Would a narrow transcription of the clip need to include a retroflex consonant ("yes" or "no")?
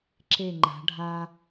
yes